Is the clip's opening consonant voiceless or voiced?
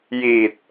voiced